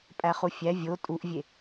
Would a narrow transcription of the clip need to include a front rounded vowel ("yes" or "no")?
no